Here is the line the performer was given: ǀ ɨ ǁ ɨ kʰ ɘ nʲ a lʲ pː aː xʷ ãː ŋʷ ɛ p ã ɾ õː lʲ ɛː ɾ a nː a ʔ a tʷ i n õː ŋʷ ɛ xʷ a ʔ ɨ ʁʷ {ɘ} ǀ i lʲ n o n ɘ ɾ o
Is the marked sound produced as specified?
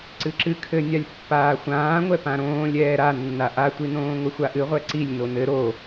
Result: no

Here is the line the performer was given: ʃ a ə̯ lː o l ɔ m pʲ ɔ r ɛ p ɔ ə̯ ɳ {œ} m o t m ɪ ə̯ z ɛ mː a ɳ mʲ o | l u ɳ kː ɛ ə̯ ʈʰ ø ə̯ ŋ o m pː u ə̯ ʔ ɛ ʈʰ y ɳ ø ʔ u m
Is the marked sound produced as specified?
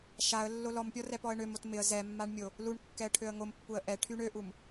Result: no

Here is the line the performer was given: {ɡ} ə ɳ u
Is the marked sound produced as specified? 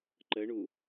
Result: no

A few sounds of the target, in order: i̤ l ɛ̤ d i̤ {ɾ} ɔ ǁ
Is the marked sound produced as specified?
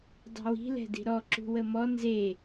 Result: yes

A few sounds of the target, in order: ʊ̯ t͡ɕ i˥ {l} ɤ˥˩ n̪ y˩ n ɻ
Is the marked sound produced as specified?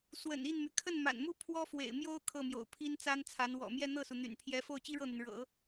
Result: no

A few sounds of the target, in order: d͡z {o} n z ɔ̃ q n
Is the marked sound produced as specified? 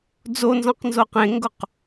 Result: yes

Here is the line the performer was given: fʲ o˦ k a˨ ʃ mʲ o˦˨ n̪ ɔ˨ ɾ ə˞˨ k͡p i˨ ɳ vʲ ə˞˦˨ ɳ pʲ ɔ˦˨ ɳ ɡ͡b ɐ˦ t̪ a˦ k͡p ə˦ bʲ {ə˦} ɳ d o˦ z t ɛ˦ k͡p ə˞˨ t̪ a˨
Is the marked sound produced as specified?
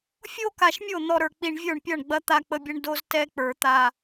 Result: yes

